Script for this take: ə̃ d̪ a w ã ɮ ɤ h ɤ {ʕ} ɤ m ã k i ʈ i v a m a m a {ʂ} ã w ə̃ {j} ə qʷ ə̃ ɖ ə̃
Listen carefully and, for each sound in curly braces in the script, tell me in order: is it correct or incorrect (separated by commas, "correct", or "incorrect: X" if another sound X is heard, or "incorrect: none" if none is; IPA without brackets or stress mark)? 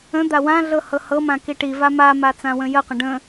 incorrect: h, incorrect: t͡s, correct